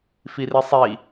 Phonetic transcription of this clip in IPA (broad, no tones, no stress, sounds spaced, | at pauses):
f i r i sˤ i